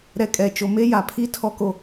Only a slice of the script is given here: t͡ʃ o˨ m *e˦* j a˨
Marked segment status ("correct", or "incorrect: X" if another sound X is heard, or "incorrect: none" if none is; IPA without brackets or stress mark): correct